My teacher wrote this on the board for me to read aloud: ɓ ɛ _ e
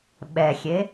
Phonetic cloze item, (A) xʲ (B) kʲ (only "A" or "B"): A